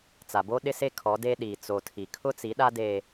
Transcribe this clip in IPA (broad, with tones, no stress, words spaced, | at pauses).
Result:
t͡sa˨bo˦ ɗɪ˦se˦ kʰɔ˨˦de˦ ɗi˨t͡so˨tʰi˨ kʰʊ˦t͡si˨˦ɗa˦ de˦